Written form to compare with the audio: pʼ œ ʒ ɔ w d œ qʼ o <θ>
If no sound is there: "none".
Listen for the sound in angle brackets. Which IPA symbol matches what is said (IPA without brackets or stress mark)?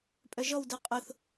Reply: θ